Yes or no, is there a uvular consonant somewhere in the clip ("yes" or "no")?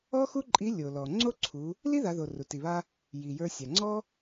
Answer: no